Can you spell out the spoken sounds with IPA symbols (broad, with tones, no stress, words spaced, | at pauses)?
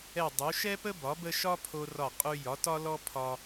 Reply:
ɛ˧˩ dˤu˩˧ʃɛ˥pə˥ bɒ˩˧bə˧ ʃɒ˥pʰo˧rɒ˧˩ qʼʉ˧ jɒ˩˧tɒ˧lɔ˧ pʰɒ˧